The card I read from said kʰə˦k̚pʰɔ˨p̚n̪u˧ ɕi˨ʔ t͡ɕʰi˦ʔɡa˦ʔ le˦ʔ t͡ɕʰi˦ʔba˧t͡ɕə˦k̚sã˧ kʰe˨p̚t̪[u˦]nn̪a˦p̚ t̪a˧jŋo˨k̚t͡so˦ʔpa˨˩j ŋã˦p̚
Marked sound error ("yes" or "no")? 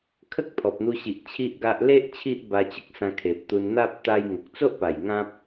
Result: yes